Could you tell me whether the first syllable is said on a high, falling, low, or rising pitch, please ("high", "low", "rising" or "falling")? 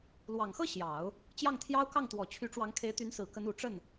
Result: low